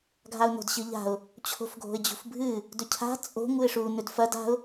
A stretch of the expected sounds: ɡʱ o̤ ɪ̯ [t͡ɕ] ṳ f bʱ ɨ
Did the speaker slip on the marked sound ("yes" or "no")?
yes